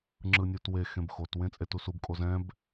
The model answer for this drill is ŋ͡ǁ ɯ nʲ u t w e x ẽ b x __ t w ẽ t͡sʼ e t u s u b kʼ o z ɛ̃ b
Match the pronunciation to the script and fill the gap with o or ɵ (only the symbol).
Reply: o